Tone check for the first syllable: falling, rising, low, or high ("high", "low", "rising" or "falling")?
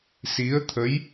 rising